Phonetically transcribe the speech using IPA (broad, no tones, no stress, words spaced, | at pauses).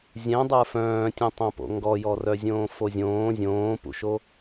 zʲɛ̃dˤə˞ fœ̃ːtʲœ̃tˤõpo̰ ŋɡɔjɔ rœzʲõːfozʲõː zʲõːpṵʃo